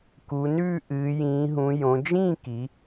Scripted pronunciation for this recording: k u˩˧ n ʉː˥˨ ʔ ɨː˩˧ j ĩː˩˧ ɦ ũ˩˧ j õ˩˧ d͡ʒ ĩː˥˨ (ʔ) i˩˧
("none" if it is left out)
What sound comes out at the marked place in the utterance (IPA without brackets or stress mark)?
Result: k